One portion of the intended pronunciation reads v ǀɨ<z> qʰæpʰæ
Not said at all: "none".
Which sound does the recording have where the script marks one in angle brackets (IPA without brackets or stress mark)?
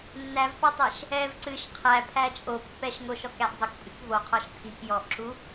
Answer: ʃ